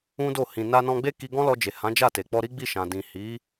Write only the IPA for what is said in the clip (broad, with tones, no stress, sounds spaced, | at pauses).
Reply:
ũ˦ d o˦˨ h ĩ˨ n a˧ n ɔ̃˧ ɡ͡b e˦ k i˧ ɡ ɔ̃˦ l ɔ˧ d͡ʒ e˨ h ã˨˦ d͡ʒ a˦˨ t e˨ k͡p ɔ˧ ɾ i˦ ɡ͡b i˦˨ ʃ ã˨ d ĩ˨ h i˨˦